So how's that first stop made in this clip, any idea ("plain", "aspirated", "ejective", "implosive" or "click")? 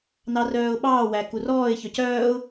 implosive